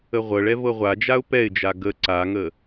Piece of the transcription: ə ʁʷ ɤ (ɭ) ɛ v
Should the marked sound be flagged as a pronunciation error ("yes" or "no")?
no